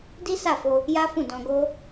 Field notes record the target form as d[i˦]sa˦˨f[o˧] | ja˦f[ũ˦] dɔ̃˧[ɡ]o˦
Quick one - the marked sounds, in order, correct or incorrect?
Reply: correct, correct, incorrect: ũ˦˨, correct

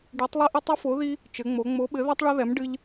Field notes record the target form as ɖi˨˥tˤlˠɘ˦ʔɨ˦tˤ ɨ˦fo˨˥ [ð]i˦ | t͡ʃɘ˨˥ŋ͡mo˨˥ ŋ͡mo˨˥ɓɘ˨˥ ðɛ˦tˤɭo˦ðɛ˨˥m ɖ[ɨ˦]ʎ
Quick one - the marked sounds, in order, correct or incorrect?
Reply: correct, correct

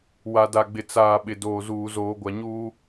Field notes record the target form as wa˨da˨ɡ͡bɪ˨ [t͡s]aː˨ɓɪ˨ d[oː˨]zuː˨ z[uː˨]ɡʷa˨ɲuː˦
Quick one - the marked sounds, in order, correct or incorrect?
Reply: correct, correct, incorrect: oː˨

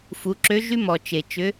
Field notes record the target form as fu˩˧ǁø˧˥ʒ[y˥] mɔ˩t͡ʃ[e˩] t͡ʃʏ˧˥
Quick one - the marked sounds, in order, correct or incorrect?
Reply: correct, correct

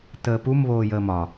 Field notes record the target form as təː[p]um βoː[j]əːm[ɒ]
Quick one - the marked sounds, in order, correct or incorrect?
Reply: correct, correct, correct

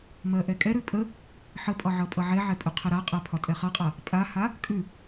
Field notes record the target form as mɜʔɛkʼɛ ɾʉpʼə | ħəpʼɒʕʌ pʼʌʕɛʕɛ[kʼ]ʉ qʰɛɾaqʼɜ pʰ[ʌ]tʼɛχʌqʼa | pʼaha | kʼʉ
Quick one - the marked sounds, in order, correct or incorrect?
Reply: incorrect: pʼ, incorrect: ɒ

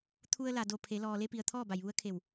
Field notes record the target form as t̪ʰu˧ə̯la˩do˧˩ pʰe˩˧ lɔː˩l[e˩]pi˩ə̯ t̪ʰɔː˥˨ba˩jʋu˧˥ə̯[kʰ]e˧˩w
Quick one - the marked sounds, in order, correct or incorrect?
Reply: incorrect: e˧, correct

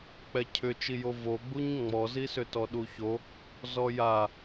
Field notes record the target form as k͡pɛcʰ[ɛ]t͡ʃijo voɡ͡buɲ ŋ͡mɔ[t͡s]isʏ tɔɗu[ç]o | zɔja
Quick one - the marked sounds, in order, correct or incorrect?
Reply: incorrect: ʏ, incorrect: z, correct

